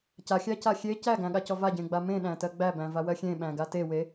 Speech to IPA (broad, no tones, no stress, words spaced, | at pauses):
caxʲæca xʲe cæɡæ̃ɠacɔ vaɟẽɡ͡ba mẽɗæ̃tɜ ɡ͡bæbæ̃vawɜ xʲẽɓæ̃ɡa tewe